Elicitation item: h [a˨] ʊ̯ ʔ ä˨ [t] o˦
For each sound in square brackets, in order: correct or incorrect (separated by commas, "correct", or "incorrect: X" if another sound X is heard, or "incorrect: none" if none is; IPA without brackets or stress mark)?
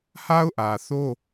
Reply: incorrect: a˦, incorrect: θ